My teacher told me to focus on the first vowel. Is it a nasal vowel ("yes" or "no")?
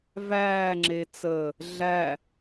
no